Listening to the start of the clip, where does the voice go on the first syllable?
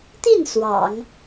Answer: falling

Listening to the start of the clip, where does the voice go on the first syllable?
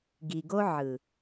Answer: low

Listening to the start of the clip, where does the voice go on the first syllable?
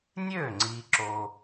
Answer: falling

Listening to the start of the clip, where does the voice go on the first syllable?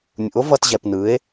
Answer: rising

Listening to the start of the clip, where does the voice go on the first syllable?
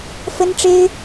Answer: high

